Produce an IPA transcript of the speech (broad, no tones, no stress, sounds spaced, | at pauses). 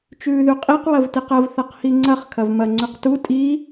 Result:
t͡ʃ ʉː ð ʉ qʼ i q w ɐ v t i q ɐ v θ ɐ q h i ŋ͡ǀ ɐ χ kʰ ɐ v m ɐ ŋ͡ǀ ʉ q t u tʼ i